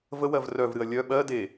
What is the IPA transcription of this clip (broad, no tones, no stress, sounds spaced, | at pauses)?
v ə w ɜ v r œ v ɾ ɨ ɐ̯ lʲ œ ɓ ɜ d e